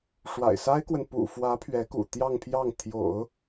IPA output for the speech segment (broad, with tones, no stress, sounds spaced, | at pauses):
ʂ w a̰˨˩ ɪ̯ s a˥ ɪ̯ k w ə˨ n p ṵ˨˩ f w ä˧˥ pʰ ɥ ɛ˧˥ k ṵ˨˩ t̪ j ɑ˥˧ ŋ pʰ j ɑ˥˩ ŋ t̪ʰ j o̰˨˩˦ ʊ̯